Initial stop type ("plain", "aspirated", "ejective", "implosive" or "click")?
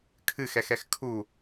aspirated